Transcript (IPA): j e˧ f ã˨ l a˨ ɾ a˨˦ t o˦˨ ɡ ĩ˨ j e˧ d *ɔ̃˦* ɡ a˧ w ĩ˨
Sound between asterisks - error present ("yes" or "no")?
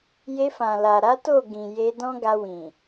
no